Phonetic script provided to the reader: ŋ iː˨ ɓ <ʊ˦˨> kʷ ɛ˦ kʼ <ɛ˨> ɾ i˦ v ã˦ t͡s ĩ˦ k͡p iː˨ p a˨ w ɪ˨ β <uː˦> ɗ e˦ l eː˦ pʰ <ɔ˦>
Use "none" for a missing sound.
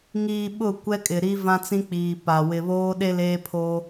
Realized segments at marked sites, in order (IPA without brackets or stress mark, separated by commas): ʊ˦˨, ɪ˨, oː˦, o˦